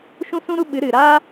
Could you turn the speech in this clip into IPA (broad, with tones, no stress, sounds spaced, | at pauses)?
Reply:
ʃ ũ˦ s ũ˦ ɾ u˦ ɓ ɨ˨˦ ɾ ɨ˨ ɾ aː˦